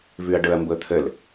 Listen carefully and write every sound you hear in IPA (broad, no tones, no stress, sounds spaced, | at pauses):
v ʉ ɐ̯ ɖ ɤ ɐ̯ m b ɤ t̪ʰ ə l